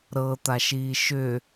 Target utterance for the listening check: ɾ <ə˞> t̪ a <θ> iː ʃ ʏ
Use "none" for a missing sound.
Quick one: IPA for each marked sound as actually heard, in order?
ɤ, ʃ

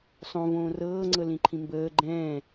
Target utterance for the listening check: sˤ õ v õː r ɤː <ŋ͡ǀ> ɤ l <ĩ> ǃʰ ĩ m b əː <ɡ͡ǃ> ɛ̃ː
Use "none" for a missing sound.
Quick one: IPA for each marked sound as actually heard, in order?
ŋ͡ǀ, ĩ, ɡ͡ǃ

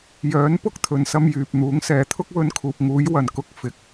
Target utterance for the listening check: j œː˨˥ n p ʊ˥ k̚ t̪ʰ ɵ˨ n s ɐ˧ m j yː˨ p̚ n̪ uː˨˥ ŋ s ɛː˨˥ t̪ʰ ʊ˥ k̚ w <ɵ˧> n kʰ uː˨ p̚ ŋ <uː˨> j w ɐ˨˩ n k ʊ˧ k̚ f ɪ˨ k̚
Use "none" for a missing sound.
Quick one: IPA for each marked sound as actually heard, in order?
ɵ˧, uː˨˥

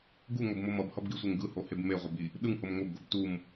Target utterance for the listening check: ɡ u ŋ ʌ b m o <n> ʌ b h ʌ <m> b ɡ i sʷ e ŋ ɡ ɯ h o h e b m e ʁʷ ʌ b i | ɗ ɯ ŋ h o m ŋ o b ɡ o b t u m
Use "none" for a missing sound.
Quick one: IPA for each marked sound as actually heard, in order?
m, none

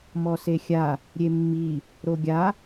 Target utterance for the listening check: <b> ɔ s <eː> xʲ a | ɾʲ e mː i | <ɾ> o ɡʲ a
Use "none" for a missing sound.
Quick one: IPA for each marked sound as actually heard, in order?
m, e, ɾ

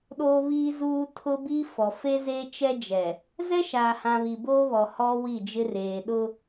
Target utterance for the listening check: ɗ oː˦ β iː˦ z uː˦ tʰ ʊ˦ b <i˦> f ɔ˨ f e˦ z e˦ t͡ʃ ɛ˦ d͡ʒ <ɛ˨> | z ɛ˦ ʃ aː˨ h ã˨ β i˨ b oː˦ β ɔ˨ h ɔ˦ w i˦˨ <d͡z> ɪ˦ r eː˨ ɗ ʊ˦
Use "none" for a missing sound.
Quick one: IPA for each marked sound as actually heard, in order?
i˦, ɛ˨, d͡ʒ

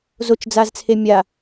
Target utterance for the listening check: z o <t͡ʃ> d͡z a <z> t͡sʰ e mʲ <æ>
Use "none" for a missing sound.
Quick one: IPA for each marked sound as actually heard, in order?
t͡ʃ, z, a

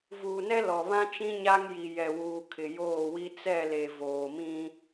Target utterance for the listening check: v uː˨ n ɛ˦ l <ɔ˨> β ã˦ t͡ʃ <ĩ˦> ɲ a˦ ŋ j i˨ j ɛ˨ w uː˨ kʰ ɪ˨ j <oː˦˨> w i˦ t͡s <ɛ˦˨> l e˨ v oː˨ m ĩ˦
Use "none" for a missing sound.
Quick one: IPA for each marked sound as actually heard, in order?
ɔ˨, ĩ˦, oː˦˨, ɛ˦˨

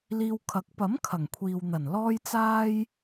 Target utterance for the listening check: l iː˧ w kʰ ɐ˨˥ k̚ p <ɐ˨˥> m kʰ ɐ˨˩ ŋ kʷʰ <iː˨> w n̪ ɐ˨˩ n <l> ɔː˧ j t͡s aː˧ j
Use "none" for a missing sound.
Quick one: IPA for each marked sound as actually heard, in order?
ɐ˨˥, iː˨, l

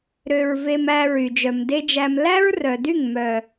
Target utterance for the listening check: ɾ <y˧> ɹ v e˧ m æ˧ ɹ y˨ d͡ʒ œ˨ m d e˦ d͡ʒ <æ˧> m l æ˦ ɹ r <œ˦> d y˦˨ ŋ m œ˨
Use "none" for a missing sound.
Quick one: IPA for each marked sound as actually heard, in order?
ø˧, æ˧, œ˨

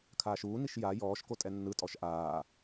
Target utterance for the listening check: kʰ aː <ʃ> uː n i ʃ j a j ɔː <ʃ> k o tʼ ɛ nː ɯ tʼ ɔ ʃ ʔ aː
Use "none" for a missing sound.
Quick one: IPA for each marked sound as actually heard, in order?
ʃ, ʃ

